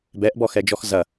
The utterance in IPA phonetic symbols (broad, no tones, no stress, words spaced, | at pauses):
bɛʔbɔxɛd͡ʒɔx zɐ